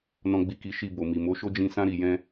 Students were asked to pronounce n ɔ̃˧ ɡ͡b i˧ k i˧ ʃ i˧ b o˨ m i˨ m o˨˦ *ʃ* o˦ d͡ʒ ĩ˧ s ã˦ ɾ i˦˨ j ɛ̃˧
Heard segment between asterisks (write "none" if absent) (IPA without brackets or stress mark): ʃ